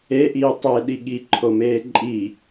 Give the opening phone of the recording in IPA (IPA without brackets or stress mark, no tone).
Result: e